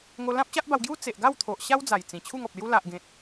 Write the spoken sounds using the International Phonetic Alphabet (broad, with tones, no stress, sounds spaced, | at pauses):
ŋ o˧ l ã˦ p̚ ɕ a˦ ʔ b a˧ w ɡ j u˦ t͡s e˨ ʔ ɡ a˥˧ w t̪ʰ o˨ ʔ ɕ a˦ w d͡z a˨˩ j t͡s ĩ˨˩ t͡ɕʰ u˥˧ ŋ ɔ˨ p̚ l j u˦ l a˨ ʔ ɡ ẽ˨ t̚